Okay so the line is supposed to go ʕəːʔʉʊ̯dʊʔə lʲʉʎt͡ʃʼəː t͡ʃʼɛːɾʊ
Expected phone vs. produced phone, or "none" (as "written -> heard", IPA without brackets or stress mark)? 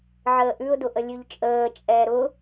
none